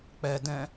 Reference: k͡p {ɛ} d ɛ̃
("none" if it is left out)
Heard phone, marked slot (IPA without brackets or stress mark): ɛ